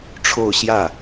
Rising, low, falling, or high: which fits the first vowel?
falling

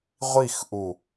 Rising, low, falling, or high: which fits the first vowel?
falling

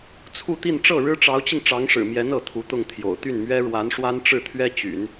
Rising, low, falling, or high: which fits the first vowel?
falling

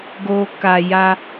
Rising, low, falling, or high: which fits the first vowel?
low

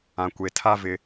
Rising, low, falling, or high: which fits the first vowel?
low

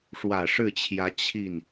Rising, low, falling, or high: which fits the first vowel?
low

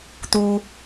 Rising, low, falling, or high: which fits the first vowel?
high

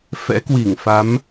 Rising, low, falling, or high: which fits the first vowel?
rising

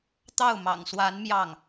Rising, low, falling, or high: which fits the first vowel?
falling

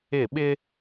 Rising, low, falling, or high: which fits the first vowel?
falling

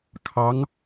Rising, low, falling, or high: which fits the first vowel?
rising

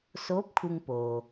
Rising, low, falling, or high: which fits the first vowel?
rising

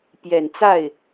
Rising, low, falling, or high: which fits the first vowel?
low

